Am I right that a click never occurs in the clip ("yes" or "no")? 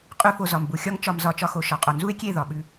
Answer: yes